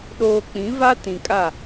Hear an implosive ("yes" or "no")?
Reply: yes